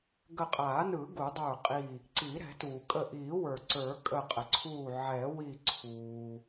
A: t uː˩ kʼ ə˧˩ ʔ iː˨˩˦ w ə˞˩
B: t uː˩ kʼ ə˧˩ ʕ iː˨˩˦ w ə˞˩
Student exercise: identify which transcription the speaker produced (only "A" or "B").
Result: A